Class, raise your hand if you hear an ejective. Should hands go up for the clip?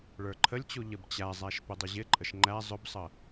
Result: yes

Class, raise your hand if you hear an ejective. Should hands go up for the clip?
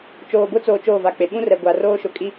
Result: yes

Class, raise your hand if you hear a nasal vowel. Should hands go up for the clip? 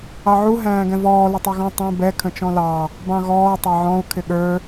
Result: yes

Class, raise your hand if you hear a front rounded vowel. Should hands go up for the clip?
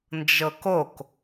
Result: no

